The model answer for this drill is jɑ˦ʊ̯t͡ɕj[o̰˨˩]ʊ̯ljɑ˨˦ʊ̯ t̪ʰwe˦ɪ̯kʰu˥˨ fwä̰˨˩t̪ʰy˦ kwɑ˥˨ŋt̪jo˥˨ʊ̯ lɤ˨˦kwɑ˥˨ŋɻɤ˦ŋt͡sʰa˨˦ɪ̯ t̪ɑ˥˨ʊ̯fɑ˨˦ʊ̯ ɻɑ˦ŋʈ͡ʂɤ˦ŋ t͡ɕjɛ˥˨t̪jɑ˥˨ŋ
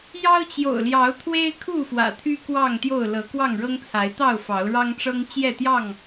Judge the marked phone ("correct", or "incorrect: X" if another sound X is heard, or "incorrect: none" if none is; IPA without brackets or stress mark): correct